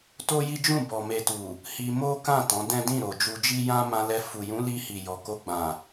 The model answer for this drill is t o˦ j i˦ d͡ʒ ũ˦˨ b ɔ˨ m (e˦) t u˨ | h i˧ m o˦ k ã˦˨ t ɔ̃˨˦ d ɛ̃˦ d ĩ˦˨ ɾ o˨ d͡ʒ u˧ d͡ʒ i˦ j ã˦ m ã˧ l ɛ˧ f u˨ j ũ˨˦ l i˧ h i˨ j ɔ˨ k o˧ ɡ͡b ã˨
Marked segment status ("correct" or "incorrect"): incorrect